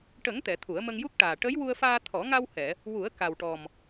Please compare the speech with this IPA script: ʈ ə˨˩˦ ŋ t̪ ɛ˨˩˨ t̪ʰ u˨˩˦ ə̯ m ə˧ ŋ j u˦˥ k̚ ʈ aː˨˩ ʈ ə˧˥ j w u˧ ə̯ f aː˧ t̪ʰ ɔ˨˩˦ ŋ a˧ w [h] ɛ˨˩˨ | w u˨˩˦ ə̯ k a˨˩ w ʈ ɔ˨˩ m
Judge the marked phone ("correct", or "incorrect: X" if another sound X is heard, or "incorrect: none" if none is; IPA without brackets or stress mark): correct